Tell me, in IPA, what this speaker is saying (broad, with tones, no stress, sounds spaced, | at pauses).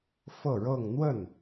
f ɤ˥˧ ɻ ɤ˥˧ ŋ n̪ w ə˥˩ n